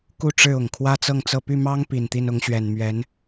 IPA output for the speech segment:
k u˥˧ ʈ͡ʂ ɻ̩˥˩ ʊ˨˩ ŋ kʰ w ä˥ t͡s ɤ˥˧ ŋ t͡s ɤ˥˧ p y˥˩ m ɑ˥ ŋ p i˨˩ n t̪ i˥˩ n ʊ˧˥ ŋ ɕ ɥ ɛ˨˩ n m ɥ ɛ˧˥ n

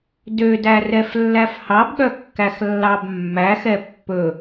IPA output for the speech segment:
d ø d æ r ɛ f lː æ f h ɑ b ɠ œ kː æ x lː ɑ b mː æ x ɛ pː ɵ

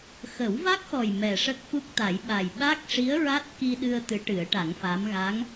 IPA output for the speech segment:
x ə˨˩˦ w v a˦˥ k̚ x ɔ˨˩ j m ɛ˨˩ ʂ ə˦˥ k̚ f u˦˥ k̚ t̪ a˨˩˦ j ɓ a˨˩ j ɓ a˦˥ k̚ ʂ i˧˥ ə̯ ɹ a˦˥ t̚ k i˧ ɗ ɨ˧ ə̯ t̪ ɨ˧˥ ʈ ɨ˨˩˦ ə̯ ʈ a˨˩˦ ŋ f a˧˥ m ɣ a˧˥ ŋ

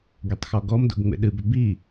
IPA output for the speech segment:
ɡ e tˤ x ɔ ɡ ɔ m d o̰ ɡ ŋ͡m ḛ ɗ ɨ b ʏ b i

